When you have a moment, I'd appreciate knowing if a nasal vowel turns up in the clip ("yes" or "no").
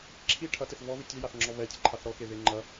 no